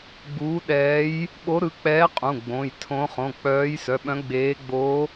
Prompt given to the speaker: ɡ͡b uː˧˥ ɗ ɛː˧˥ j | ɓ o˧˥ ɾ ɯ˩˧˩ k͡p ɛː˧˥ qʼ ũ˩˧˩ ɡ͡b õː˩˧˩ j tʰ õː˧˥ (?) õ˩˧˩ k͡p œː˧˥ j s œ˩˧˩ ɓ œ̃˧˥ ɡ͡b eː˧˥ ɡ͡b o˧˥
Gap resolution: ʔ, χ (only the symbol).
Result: χ